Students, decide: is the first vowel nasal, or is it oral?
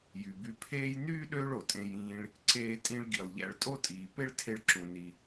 oral